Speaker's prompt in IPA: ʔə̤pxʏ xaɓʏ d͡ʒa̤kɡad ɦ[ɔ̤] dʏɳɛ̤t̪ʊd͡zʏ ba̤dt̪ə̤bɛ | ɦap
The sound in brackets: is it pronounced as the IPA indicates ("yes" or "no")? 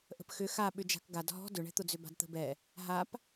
yes